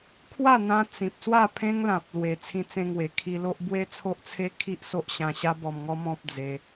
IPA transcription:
kʰ w a˥˧ n̪ ã˧ t͡s ĩ˨ p̚ s w a˥˧ pʰ ẽ˦ ŋ l ã˨ p̚ l w e˨˩ t͡sʰ ĩ˧ t͡s ẽ˧ ŋ w e˨˩ kʰ i˧ l o˦ ʔ b w e˦ t͡sʰ o˦ ʔ t͡sʰ e˦ kʰ i˦ ʔ s o˦ ʔ ɕ ã˧ ɕ a˦ b ɔ˧ m ŋ ɔ˦ m ɔ̃˦ p̚ d͡z e˧

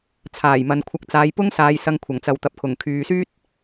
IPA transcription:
t͡sʰ aː˨˩ j m ɐ˨ n kʷʰ ɐ˨˥ k̚ t͡s aː˨˧ j p ʊ˥ ŋ s aː˧ j s ɐ˧ ŋ kʷʰ ɐ˨˩ ŋ t͡s ɐ˨ w t̪ ɐ˨ p̚ kʰ ʊ˨˩ ŋ kʰ yː˨ s yː˥ t̚

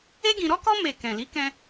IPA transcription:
e˦ ɡ ĩ˧ ɾ ɔ˦ k ɔ˦ m e˦˨ k ɛ̃˨ l i˨˦ k ɛ̃˧

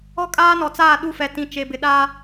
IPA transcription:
ɔ˦ kʼ aː˦ n ɔ˨ t͡s aː˦˨ ɗ u˦˨ f ɛ˨ t ĩ˨ t͡ʃ e˨ b ɪ˨ ɗ aː˦

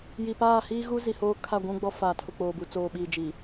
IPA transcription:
j i˨ p aː˦˨ h iː˦ ɣ u˦ z i˨ h oː˦ kʰ a˦˨ ɡʷ ũ˦ ɡ͡b ɔ˦ f aː˨ tʰ ʊ˨ k͡p oː˨ b u˨ t͡s oː˨ ɓ iː˨ d͡ʒ i˨

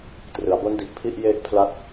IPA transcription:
t r ɯ˩˦ a̯ b o˦˥ n d i˨˩ ʔ pʰ i˥˩ ʔ j e˥˩ ʔ pʰ l a˦˥ t̚

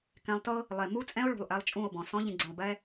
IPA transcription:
k ɛ̃˧ lˠ t ɤ˦ | lˠ e˨ m u˦ t͡sʼ ɛ̃˦ o̯ ɭ ṳ˨ lˠ ʔ ɛ˧ lˠ t͡ʃʼ ũ˦˨ o̯ b ɔ̃˨ s ɔ̃˧ ʎ ĩ˨ ɡ͡ǀ ẽ˨ lˠ b ɛ˧

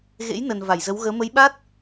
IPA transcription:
ɣ ḛ˧˥ j n ə˨˩ n v a˧˩ j z ə˨˦ w ɣ əː˨˦ m ə˨˦ j ɓ a˦˥ t̚

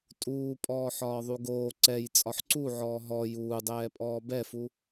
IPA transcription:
tʼ uː pʼ ɔː ħ ɒː ðˤ u ɡ oː ǀ ɛ j t͡sʼ ɒ ħ ǀ u ʕ ɔː ɦ ɔ j uː dˤ ɛː pʼ ɔː b ɛ f u

